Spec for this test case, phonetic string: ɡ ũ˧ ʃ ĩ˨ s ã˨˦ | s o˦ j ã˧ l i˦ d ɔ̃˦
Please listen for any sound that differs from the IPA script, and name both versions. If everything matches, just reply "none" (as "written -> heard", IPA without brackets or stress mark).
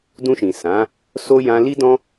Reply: ɡ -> d